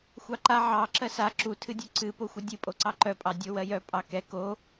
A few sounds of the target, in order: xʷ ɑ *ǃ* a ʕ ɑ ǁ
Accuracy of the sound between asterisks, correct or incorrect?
correct